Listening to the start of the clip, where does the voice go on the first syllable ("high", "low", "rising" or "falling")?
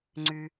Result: low